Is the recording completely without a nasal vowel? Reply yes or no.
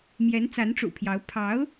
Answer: yes